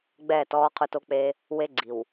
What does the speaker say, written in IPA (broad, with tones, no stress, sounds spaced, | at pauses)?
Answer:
ɡ͡b ɛː˦˨ t ɔː˦ qʰ ʊ˦ t o˦ k͡p eː˦ | w e˦ ɡ͡ǀ i˨ w